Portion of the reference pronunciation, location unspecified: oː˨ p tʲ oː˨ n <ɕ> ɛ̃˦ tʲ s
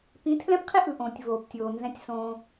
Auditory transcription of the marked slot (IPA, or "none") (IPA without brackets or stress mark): z